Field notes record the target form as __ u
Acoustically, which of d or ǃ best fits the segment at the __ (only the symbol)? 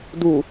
d